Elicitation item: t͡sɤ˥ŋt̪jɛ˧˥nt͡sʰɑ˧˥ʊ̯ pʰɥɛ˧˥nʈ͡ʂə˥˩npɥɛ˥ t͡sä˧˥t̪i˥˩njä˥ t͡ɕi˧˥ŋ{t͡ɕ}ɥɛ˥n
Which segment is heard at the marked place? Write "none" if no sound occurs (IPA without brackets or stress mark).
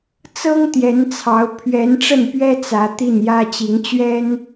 t͡ɕ